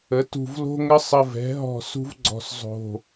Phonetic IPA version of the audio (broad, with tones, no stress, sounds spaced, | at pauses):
ə˩˥ t ṳ˧˩ v l o̤˦ ŋ ə˦ sˤ ə˧˩ v ɛ̤˩˥ ɦ ɔ̤˧˩ s ṳ˦ v ɡ͡ǀ ɔ̤˧˩ s zˤ o̤˧˩